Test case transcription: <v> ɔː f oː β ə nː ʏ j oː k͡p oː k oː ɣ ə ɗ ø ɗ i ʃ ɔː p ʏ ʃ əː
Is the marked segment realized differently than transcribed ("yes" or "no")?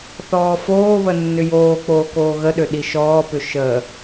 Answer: yes